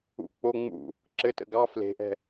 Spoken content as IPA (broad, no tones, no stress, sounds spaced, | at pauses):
ṵ k͡p o ŋ͡m ṵ | ǁ ɘ t ə̰ ɡ ɑ f l e̤ ʔ ɛ̤